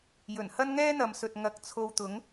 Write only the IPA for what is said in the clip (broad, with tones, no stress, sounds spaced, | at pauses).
j ɵ˨˩ n h ɐ˥ n ŋ ɛː˥ n̪ ɐ˨ m s ɵ˨ t̚ ŋ ɐ˨˥ k̚ t͡sʰ o˧ w t̪ ʊ˨˥ ŋ